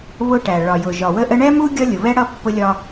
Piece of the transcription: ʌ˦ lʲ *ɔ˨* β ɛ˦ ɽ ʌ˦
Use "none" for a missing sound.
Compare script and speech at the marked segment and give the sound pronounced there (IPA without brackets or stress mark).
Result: ʊ˨